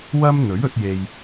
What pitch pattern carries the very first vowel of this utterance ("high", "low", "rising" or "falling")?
high